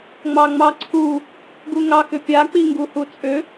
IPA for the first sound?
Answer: ŋ͡m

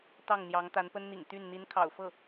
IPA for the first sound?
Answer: t̪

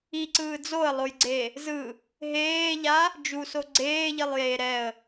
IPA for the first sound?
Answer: i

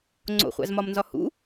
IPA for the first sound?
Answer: ŋ͡ǀ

